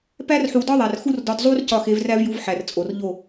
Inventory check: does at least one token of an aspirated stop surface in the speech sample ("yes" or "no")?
no